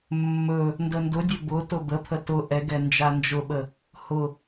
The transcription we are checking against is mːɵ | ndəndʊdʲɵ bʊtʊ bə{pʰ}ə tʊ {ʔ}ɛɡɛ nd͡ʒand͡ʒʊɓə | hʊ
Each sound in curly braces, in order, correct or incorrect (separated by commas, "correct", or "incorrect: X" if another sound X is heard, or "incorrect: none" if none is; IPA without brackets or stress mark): correct, correct